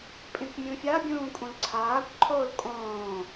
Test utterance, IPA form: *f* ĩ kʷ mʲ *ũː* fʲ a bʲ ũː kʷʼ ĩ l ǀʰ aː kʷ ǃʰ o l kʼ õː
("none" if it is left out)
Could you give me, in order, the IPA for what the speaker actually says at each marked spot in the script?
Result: pʼ, ũ

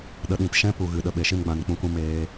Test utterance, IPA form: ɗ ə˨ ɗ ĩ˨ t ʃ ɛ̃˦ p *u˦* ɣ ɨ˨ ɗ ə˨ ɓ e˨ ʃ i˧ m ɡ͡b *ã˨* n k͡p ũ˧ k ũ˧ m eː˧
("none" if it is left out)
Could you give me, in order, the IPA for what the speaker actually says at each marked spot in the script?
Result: u˨, ã˨

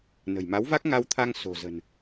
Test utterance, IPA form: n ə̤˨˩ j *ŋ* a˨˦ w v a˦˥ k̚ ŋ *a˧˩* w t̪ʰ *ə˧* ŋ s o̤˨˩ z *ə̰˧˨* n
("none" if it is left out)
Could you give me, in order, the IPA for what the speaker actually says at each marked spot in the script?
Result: m, a˧, a˧, ə̤˨˩

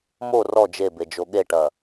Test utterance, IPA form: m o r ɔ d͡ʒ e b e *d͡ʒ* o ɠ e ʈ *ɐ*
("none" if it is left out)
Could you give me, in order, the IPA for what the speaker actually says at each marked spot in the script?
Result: d͡ʒ, ɐ

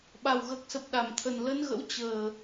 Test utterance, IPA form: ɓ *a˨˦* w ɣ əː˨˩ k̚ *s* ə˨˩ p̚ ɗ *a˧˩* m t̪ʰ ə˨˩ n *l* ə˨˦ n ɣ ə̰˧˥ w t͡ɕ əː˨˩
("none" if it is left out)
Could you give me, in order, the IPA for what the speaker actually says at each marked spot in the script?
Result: a˨˩, s, a˧˩, l

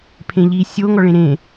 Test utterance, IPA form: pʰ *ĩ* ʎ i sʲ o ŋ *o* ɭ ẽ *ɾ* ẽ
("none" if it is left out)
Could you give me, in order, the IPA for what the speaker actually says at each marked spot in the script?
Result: ẽ, ɔ, ɾ

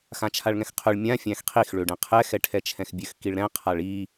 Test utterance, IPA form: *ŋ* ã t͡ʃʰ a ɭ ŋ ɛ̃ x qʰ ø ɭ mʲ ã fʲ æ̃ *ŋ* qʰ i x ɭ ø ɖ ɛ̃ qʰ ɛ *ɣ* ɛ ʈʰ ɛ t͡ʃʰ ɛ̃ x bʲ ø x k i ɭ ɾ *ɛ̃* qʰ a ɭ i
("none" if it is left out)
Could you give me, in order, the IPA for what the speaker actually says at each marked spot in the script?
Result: x, x, x, ɛ̃

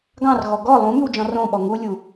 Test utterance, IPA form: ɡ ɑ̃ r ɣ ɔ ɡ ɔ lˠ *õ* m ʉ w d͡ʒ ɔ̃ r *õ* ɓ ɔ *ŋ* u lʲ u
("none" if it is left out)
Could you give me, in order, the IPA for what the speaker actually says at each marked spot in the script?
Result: ũ, õ, ŋ

